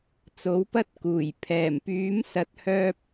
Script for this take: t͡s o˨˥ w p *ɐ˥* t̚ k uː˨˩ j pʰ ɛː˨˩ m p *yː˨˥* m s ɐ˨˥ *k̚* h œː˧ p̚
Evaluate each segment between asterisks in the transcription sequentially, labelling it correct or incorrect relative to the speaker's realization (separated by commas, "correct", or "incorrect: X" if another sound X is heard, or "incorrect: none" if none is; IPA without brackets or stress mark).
correct, correct, incorrect: t̚